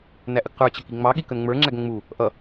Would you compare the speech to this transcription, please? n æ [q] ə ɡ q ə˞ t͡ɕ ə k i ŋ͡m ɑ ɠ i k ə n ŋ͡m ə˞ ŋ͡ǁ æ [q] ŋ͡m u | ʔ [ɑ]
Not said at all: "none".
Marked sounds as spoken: ʔ, ɡ, ʌ

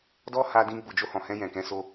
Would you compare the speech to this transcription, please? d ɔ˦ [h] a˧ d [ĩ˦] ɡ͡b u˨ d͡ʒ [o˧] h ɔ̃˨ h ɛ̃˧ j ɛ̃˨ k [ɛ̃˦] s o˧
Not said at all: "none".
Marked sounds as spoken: h, ĩ˧, o˧, ɛ̃˨˦

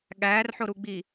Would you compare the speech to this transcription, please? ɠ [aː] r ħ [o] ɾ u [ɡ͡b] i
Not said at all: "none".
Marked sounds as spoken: æː, o, ɡ͡b

